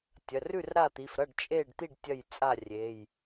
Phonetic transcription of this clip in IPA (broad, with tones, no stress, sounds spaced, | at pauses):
tʲ ɐ˩˧˩ r ʉ˥˩ r ɾ a˥˩ t̪ i˩˧˩ f ɾ ɐ˥˩ ɖ t͡ʃʼ e˥˩ ɖ t̪ i˥˩ ɖ tʲ ɐ˥˩ j t͡sʼ a˥˩ rʲ e˩˧˩ j